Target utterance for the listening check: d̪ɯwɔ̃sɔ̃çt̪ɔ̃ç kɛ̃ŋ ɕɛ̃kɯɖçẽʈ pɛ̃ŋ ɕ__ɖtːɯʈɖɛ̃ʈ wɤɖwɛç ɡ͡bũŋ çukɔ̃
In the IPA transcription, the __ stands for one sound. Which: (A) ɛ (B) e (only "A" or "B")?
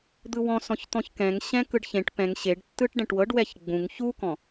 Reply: B